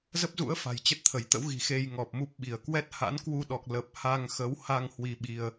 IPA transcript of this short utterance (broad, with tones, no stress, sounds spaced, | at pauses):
z ə˦˥ p̚ z ṵ˧˥ ə̯ f a̤˨˩ j t͡ɕ ə˦˥ t̚ t̪ʰ ə˧˩ j t̪ ə̰˧˥ w ɣ i̤˨˩ x e˧ j ŋ ɔ˨˩ p̚ m u˦˥ p̚ ɓ i˧˩ ə̯ k w ɛ˦˥ t̚ h a̰˧˥ n k w u˧ ɗ ɔ˨˩ k̚ l ə˨˩ p̚ h a˧ ŋ x ə˨˦ w h a˧ ŋ h w i˧ ɓ i˧ ə̯